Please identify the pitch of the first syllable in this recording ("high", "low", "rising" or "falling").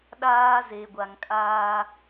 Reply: high